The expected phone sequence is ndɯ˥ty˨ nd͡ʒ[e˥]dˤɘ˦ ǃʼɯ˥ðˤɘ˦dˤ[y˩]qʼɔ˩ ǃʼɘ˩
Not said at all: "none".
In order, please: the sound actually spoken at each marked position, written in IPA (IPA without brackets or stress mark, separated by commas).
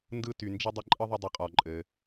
e˥, y˨